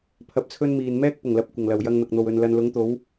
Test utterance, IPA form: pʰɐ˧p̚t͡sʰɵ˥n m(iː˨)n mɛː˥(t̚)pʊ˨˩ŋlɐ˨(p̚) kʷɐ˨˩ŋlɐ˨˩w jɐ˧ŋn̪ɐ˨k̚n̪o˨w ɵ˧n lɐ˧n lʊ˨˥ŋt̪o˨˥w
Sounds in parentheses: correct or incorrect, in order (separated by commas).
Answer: correct, incorrect, correct